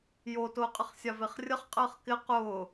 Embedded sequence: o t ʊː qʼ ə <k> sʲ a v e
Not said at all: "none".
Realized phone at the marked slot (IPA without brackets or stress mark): χ